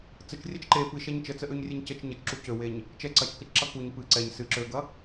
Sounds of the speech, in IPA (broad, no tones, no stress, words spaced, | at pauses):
t͡sət͡ʃrʲɛt͡ʃ ǃe pɨʃɛɲ t͡ʃət͡səʔøɲrʲeɲ cət͡ʃ ɲət͡ʃǁu cøweɲ | t͡ʃɛ ǀɐt͡ʃkət͡ʃǁɐ kuɲ pɨ ǀɛɲ sɨ ǁøɡɐ